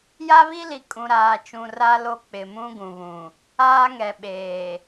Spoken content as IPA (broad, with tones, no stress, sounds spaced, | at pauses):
j a˦ β i˦ l i˨ kʼ ũ˨ ɾ aː˨ t͡ʃ ũ˨ r a˦ l o˦ k͡p ɪ˨ m ũ˦ ɡ ũ˨ β ũ˨ | aː˦ ŋ ɛ˨ ɓ eː˨